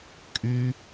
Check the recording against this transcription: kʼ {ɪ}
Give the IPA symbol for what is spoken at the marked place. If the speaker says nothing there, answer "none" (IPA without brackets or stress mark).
y